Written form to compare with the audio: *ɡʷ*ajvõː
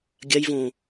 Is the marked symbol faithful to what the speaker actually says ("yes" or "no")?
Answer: no